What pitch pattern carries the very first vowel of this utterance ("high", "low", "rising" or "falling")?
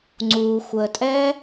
low